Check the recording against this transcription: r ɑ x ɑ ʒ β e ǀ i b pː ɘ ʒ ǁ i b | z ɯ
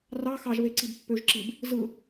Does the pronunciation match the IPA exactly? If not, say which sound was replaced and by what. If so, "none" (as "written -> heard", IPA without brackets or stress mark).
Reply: ɘ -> ø